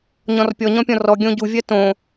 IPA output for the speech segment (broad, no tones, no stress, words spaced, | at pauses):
ɲɔ̃rpʲɔɲɔ̃pʲɔ̃ rɔ ɡʲõɟuvʲɜ tõ